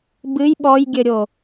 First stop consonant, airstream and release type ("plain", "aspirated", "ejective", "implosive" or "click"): plain